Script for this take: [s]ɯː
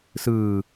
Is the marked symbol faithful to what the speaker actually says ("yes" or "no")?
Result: yes